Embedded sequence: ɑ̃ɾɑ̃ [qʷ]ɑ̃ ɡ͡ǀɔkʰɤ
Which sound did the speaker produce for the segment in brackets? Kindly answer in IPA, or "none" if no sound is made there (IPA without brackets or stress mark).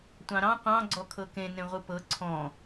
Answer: qʷ